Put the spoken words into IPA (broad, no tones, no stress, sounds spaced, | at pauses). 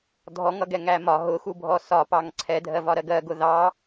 dʱ ɔ ŋ ʌ ɡ ɛ ŋ æ m ɒ ɦ ʊ x u bʱ ɔ s ɒ p ɑ ŋ ǀʰ ɛ dʱ ɜ v ɒ ɾ ɜ ɡ ɜ ɡ ʊ ð ɑ